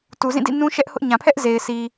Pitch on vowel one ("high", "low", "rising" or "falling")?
low